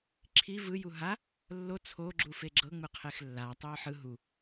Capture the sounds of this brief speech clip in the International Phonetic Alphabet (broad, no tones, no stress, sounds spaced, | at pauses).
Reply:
ǁʰ i v ɯ j u ɦ a | lː o t͡sʰ o ɡ͡ǁ u f e ɡ͡ǁ ɤ ŋ͡m ɯ qʰ e x lː a tˤ u ə̯ ħ ɯ ɦ u